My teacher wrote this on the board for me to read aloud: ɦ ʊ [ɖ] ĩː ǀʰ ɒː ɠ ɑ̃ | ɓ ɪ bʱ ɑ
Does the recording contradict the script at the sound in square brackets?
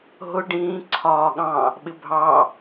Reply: no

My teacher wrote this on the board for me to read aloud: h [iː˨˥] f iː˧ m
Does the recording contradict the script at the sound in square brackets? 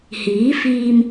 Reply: no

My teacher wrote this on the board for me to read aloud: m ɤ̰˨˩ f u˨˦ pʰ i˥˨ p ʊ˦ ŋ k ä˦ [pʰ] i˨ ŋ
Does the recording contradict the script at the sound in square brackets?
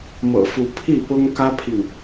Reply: no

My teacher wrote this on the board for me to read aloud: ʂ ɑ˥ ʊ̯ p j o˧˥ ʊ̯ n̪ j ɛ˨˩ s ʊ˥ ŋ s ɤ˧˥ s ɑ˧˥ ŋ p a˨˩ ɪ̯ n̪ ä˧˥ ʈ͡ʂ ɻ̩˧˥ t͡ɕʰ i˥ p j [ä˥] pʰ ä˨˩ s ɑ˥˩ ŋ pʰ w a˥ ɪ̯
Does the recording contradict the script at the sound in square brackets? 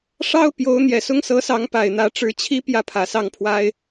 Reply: yes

